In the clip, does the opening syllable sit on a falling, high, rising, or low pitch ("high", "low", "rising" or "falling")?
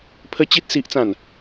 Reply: high